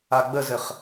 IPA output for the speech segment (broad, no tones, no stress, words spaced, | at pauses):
aɡ͡bəzɘχ